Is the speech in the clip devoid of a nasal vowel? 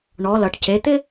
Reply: yes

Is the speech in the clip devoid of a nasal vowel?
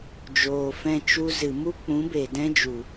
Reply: no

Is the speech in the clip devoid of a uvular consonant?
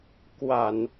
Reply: yes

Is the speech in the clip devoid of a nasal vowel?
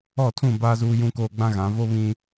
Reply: no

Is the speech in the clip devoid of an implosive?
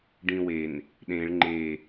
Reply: no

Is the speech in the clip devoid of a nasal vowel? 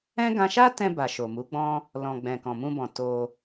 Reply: no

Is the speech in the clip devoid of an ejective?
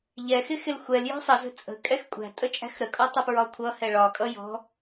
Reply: no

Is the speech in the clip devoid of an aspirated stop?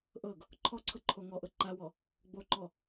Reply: no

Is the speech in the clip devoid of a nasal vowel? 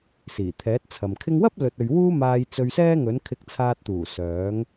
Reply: yes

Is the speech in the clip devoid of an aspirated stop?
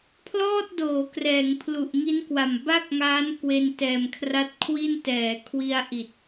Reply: no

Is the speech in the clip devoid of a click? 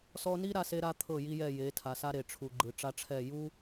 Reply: no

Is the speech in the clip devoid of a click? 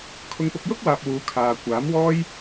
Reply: yes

